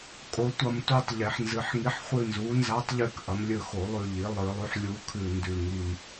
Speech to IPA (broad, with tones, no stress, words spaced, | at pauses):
kʼo˩˥tʷɐ˦˨mtu˦˨tˤ ʎe˨˩˦ħnzɨ˩˥ħŋi˧˥ħ χʷɨ˦˨nzu˩˥nza˧˥tˤʎʉ˦˨k ʔɐ˩˥mlʲɵ˦˨xo˨˩˦lˠʉ˦˨ ʎi˩˥ lˠɨ˨˩˦lˠʉ˩˥ħlʲu˧˥ kʰʉ˦˨ndʉ˦˨ ŋi˦˨m